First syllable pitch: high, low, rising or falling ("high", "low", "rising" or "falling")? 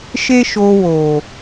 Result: high